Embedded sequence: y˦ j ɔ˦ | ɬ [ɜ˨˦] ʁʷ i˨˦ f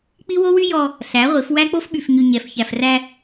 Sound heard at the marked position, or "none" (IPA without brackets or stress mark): æ˨˦